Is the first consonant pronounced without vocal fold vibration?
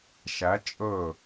yes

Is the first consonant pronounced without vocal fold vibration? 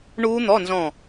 no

